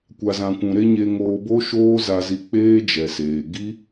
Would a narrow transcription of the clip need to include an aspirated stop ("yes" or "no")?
no